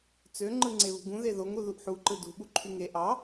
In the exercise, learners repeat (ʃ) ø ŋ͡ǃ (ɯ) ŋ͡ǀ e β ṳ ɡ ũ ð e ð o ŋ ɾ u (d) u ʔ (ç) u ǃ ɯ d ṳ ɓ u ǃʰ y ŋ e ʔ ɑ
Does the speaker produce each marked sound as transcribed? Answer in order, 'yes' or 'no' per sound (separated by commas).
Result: no, yes, no, no